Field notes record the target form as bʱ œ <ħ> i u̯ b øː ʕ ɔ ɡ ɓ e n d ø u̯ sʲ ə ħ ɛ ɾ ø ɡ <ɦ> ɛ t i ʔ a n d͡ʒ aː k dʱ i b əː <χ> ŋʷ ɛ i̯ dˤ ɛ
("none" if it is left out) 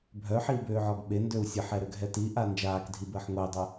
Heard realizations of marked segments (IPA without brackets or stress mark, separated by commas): ħ, ɦ, ħ